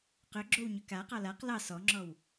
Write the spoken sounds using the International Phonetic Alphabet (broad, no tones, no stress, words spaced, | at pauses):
qʏɡ͡ǁow ɲʏkaqɑ laq lɑ sɔŋ͡ǁɔw